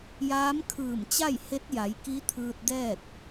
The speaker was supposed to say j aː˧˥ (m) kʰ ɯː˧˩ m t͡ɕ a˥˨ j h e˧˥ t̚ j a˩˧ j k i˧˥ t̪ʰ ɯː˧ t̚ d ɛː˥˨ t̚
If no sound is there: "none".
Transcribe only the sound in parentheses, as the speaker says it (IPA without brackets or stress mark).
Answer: m